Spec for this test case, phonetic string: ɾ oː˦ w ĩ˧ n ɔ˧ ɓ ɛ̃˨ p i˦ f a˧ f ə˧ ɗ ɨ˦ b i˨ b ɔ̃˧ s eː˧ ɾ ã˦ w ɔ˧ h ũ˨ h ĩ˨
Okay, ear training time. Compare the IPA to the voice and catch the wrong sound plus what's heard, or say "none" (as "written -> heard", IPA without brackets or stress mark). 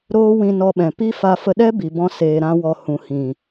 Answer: ɨ˦ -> ɛ˦